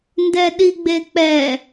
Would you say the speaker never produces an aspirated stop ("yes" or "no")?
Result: yes